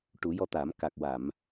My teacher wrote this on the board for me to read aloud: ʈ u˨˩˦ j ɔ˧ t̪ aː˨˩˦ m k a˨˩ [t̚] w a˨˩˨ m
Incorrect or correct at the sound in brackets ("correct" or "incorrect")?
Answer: incorrect